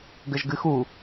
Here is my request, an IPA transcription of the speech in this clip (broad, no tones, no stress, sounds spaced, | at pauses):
ɡ ɘ ʒ ɡ ɨ x u